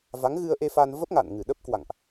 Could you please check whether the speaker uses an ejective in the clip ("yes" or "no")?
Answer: no